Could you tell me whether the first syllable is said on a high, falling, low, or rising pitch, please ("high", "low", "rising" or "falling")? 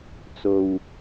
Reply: low